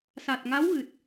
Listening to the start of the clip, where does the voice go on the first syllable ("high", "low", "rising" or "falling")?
low